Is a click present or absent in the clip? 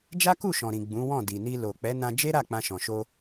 absent